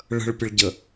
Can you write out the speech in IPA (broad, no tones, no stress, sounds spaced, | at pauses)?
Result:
ɭ ə̤ ɭ pʲ ə ɭ ɟ ə